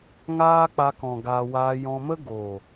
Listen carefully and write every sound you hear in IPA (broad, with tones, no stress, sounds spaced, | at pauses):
ŋ aː˦ k͡p a˧ k ɔ̃˨ ɡ a˧ w aː˧ j ɔ̃˧ m ə˦ ɡ o˨